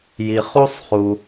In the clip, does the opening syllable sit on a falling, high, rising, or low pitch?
low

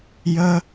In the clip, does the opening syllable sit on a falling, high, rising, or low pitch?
high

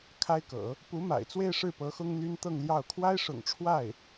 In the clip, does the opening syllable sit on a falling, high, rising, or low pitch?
high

